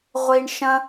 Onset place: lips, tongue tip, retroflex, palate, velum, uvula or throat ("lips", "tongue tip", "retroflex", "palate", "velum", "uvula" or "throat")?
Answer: uvula